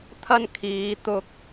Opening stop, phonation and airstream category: aspirated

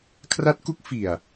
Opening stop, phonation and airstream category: aspirated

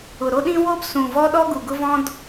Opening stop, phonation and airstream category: implosive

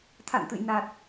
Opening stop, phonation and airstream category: aspirated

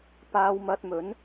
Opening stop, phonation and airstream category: plain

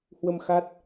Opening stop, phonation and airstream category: plain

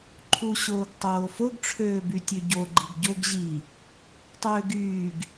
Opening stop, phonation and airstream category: click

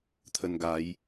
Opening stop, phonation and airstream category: aspirated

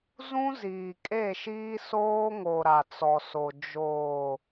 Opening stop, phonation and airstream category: ejective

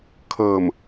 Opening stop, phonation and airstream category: aspirated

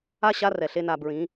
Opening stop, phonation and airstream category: plain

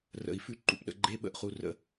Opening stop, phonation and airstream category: click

